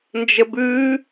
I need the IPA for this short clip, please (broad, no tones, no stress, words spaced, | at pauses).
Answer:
nd͡ʒəbʉ